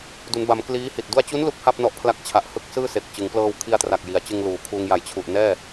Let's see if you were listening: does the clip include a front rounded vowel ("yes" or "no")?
no